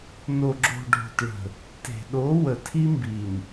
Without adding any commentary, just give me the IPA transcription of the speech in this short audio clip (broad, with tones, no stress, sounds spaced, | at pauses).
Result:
n o˨ ɡ͡ǁ o̤˨ ɖʱ o̤˨ t ɭ ə̤˨ | t e̤˨ ɗ o˨˦ w ə˨ tʰ i˦ m b i˨ n